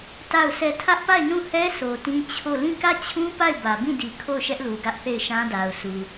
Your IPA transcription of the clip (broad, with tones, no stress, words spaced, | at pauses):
ta˦˨ʊ̯sʰɛ˦˨ tʰä˦ʔpa˦˨ɪ̯nũ˦˨hɛ˦ sʰo˨tĩ˦ t͡ɕʰo˦˨ lĩ˦˨kä˦˨t͡ɕʰũ˦ pa˦˨ɪ̯bä˨bĩ˦˨di˨ kʰo˦˨ʊ̯ʃɛ˦ʔlu˨ ɡä˦ʔθe˦˨ɪ̯ʃã˦da˨ʊ̯ sʰu˨